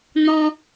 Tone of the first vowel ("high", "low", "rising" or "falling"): high